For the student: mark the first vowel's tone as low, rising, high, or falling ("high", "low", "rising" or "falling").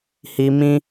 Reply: high